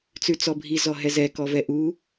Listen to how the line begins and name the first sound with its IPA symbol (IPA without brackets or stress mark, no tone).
t͡s